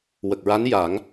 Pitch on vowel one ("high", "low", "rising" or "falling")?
low